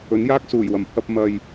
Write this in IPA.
ɵ˨˥njaː˥k̚ suː˨˩jwɐ˨˩mpʰɐ˧p̚ mɐ˨j

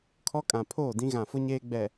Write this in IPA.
kʰɔ˦kʼã˨ pʰoː˦˨dĩ˦ɣã˨fʊ˦ ɲeː˦ɡ͡bɛ˨

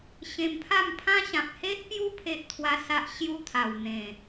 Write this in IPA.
ɕẽ˧mpʰa˥˧mpʰã˦ ɕã˨p̚he˦ʔpju˦ pʰe˦ʔt̪ʰwa˦sa˦ʔ ɕju˦ t̪ʰa˨˩wn̪ẽ˨˩

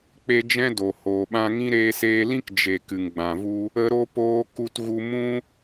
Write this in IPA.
k͡pe˧ d͡ʒɛ̃˦do˨ hoː˨ɓã˧ŋĩ˦ ɾeː˧seː˧lĩ˦k d͡ʒe˨ kɨ˨ŋɡ͡bã˨vu˧ | ə˦ɾo˦poː˦ ku˦tɣu˦ mũ˦

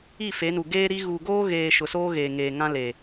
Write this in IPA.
i˦˨fe˨˦nu˨ ɡeː˦ɾi˦ ɣu˨ɡoː˦ɣeː˨ ʃʊ˨soː˦ ɣeː˨ ŋeː˨ŋã˦le˨

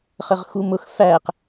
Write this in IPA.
χəʁxumʊx fæq

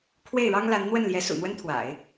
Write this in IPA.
kʰwe˥˩ɪ̯ɻɑ˥ŋla˧˥n n̪wə˥˩nljɛ˧˥ sṵ˨˩n̪wə˥nt̪ʰwa̰˨˩˦ɪ̯

